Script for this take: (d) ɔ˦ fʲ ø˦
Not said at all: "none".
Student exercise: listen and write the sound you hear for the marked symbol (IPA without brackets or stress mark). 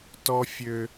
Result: t